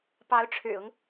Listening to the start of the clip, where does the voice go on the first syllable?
rising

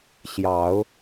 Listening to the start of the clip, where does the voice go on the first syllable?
low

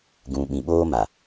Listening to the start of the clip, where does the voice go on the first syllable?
low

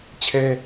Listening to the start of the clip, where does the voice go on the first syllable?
high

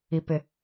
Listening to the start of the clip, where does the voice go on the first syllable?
low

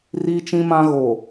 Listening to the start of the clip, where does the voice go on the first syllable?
high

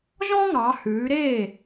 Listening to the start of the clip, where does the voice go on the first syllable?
high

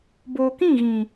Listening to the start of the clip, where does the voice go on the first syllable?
low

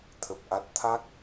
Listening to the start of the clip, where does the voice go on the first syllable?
low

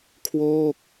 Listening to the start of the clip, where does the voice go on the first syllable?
falling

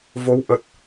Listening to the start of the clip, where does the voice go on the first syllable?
rising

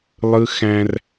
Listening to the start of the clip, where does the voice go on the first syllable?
high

